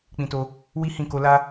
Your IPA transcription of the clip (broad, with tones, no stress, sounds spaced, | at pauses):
k͡p ĩ˧ t o˧ | w i˦ h ĩ˦˨ k o˧ l a˦